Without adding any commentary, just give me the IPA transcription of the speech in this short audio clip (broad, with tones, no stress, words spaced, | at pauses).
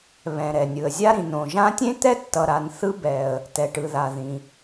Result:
βɛ̃˩ ɾɛ˩nʲɯ˩ə̯zʲa˥ ɾĩ˩nõ˩ʒã˦tʲẽ˥ t̪ɛ˥tːʌ˨ɾa˨nθɯ˦ bɛ˩ə̯ | tɛ˩ʈɯ˩ða˩ ðĩ˩